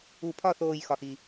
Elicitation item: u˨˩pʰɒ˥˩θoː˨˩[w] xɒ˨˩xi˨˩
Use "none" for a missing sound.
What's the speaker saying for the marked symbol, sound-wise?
j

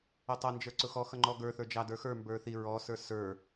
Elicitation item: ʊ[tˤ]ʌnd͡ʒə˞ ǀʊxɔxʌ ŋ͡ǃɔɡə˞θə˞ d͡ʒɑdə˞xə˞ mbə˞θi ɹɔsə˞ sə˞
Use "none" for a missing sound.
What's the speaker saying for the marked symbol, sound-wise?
tˤ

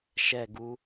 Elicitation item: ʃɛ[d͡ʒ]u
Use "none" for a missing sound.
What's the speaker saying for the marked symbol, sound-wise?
ɡ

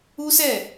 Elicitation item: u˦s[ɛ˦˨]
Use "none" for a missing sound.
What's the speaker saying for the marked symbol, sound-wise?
ɛ˦˨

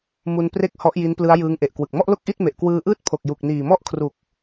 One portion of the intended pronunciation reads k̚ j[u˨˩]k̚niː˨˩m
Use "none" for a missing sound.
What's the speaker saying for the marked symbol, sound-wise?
u˨˩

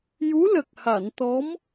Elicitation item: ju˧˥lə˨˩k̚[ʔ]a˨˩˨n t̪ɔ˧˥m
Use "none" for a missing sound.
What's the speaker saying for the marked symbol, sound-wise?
h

